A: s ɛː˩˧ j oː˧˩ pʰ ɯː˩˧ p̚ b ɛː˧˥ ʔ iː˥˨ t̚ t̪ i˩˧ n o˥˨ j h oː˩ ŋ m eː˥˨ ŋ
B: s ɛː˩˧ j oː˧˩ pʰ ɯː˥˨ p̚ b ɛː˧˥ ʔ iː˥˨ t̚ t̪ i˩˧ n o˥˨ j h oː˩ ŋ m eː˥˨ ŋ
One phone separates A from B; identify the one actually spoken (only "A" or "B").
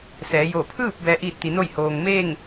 B